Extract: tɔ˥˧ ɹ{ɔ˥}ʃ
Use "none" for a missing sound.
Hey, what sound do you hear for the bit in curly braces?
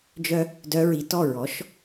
ɔ˩˥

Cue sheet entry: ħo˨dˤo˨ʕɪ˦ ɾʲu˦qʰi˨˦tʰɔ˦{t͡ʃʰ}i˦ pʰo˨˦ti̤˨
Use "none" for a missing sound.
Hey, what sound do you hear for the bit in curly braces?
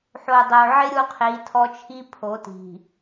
t͡ʃʰ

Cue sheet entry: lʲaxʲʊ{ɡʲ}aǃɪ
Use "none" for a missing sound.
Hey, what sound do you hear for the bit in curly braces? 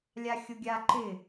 ɡʲ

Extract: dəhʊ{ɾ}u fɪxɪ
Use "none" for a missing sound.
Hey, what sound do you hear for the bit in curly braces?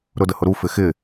ɾ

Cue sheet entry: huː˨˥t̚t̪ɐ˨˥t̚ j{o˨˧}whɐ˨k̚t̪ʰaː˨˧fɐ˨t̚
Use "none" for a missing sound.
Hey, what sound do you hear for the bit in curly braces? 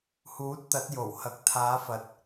o˨˩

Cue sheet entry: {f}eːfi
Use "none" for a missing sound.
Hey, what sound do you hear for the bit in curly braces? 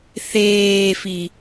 θ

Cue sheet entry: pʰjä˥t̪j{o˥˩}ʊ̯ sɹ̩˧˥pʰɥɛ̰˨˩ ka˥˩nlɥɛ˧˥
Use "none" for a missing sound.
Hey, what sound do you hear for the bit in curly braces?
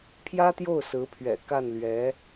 o˥˩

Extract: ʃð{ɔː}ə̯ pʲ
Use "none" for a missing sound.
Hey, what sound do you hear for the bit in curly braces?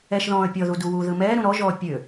ɔ̃ː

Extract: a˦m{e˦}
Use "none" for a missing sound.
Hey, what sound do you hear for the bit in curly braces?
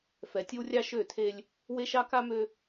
ø˦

